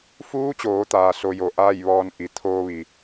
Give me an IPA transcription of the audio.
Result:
f uː˧˥ t͡ɕ oː˩˧ t̪ aː˩ s o˧ j o˧˩ ʔ aː˥˨ j ʋ ɔː˧ n ʔ i˩˧ t̪ʰ oː˧ ʋ i˩

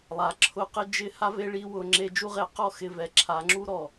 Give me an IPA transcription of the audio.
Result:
lˠ a˨ ǁʰ ʊ˧ q ɪ˦ d͡ʒ ɪ˦ h a˦ v e˦ ɭ i˦ w ʊ˧ ŋ͡ǁ e˦ d͡ʒ u˧ ʁ e˨˦ q ɔ˦˨ x ɪ˦˨ v ɛ˧ ǁʰ a˨˦ ŋ͡ǁ u˦ ɾ ɔ˨

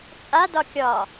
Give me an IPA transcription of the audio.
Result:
t͡sʼ a d ɒ kʲ ɒ

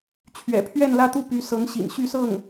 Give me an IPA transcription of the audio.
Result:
t͡ɕʰ ɥ ɛ̰˨˩ pʰ ɥ ɛ˥˧ n l ä˥˧ t̪ u˥˩ p y˧˥ s ɤ˧˥ ŋ ɕ ḭ˨˩ n ɕ y˥˧ s ɤ˥˩ ŋ

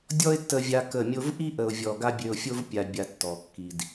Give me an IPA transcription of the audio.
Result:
dʲ ɔ˦ ɪ̯ tː ə˧ vʲ a˧ k ə˦˨ mʲ o˧ v ʔ i˦ ʔ ə˨ ʊ̯ vʲ ɔ˨ ɡ a˦ bʲ ø˧ ʊ̯ fʲ o˦ v pʲ a˨ bʲ a˨ tː ɔ˨ kː i˨ d

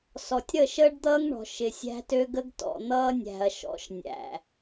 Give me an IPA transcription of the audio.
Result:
s ɔ˨ tʲ ɾ ə˦˨ ʃ əː˦ ɖ d̪ ʌː˦ ŋ ɳ ɔ̤˨ ʃ ɪ˨ sʲ æ̤˦ t ø˦ ɡ ə˦ ɡ t ɔ̰˨ n̪ ʌː˦ nʲ æ̤˨ ɐ̯ ʃ ɔ̰˨˦ ʃ nʲ æ̰˨

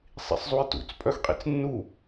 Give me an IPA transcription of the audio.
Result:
sˤ ḭ sˤ zˤ u j t ṵ t͡s pʼ œ x qʼ ḭ t͡s nː u

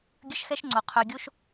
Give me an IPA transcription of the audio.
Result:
ɡʲ ə˦ ʃ x ɛ˦ ʃ ŋ͡ǀ o˨ qʰ ø˨ ɡʲ o˦ ʃ

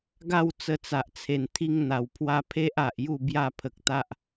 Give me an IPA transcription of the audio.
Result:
ɡ a˥˧ w t͡s ə˧ t͡s a˨ ʔ t͡sʰ e˨˩ n t̪ʰ i˦ ŋ n̪ a˨˩ w pʰ w a˦ pʰ e˦ ʔ a˨ ʔ j u˥˧ b j a˥˧ pʰ ə˨ k̚ t̪ a˦ ʔ

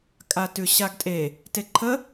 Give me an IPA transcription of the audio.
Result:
kʼ a t ʉ ɕ a ɡ tʼ e | t e ǃʰ ə

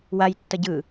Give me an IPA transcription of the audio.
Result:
w a j tː ʌ ɟ ɯ

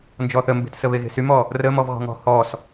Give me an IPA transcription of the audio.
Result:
n d͡ʒ ɔ θ ə m b e̤ t s ə β e ɣ e̤ s y m ɔ | r ə m ɔ v ɣ ɔ̤ ŋ ɔ̤ h ɔ s

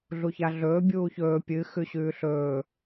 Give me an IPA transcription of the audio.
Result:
ɮ u ç a ɮ ɵː bʲ uː ç ɵː pʲ ɨ x ʉ ɕ ʉː ɬ ɵː

